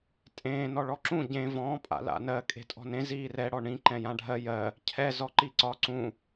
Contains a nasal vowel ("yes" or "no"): yes